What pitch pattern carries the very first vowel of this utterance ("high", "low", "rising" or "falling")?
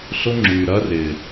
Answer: high